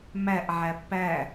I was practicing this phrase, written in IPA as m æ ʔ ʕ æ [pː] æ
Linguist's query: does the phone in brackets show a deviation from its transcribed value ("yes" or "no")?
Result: no